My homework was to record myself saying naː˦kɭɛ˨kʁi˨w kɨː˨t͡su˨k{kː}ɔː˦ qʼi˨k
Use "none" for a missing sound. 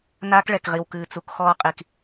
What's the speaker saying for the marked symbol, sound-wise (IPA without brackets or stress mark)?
x